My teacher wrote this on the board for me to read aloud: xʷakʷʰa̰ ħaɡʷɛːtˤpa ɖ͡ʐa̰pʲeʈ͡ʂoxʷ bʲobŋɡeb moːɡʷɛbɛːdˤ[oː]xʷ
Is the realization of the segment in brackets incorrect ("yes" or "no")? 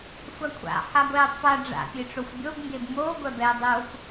no